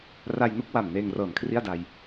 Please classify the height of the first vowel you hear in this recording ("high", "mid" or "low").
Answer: low